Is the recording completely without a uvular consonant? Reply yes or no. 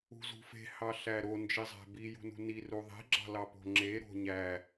yes